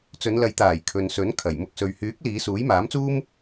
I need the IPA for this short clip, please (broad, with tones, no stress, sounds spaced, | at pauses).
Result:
t͡s ɵ˨˧ n l ɐ˨˧ j t̪ aː˨˩ j kʰ ɵ˨ n s ɵ˨˥ n kʰ ɐ˨˩ j m ʊ˧ k̚ s ɵ˨ ɥ h yː˨˥ k̚ l iː˨˧ s uː˨˥ j m aː˨˥ m t͡s uː˥ m